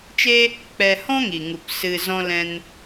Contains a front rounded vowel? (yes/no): no